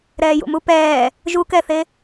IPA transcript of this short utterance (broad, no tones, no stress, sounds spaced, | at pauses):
ɾ ɛː j ṵ m u p ɛː | ʒ u k ɛ θ e